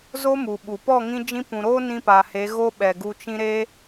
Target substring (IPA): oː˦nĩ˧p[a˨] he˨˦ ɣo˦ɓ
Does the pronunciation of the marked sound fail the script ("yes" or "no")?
no